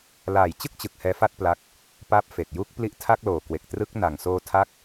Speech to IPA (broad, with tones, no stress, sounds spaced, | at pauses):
l aː˨˩ j t͡ɕ ɯ˥˩ k̚ t͡ɕ ɯ˨˩ k̚ h ɛː˦˥ f a˥˩ t̚ p l a˦˥ k̚ | p a˦˥ p̚ f e˨˩ k̚ j u˦˥ k̚ p l i˦˥ ʔ tʰ a˥˩ k̚ l oː˨˩ k w e˨˩ k̚ t r ɯ˦˥ k̚ n a˨˩ ŋ s oː˧ tʰ a˦˥ k̚